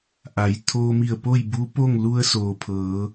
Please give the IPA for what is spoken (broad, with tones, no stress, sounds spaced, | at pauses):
ʔ a˩˧ j t̪ʰ oː˧ m i˧˩ ə̯ p o˥˨ j b u˧˥ p oː˥˨ ŋ l u˧ ə̯ s oː˩ pʰ ɤː˩˧